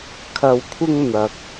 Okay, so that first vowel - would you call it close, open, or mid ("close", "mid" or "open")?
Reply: open